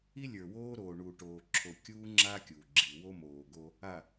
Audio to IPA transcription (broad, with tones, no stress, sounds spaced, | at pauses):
i˦ lʲ ə˞˨ w oː˦ ɾ oː˨ ɳ u˨ ʈ oː˨ ǁʰ o˨ kʲ uː˦ ŋ͡ǁ a˦ kʲ u˨ ɡ͡ǁ i˨ w o˦ m oː˨ ɡ o˦ | a˨